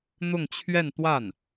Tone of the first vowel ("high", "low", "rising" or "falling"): falling